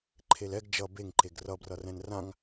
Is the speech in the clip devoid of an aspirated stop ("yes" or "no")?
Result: no